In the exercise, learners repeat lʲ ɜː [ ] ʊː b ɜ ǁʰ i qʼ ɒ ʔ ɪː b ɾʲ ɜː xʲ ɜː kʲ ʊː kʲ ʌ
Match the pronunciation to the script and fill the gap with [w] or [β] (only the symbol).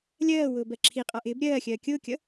w